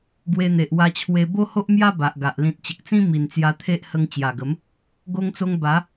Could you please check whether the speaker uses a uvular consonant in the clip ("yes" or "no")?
no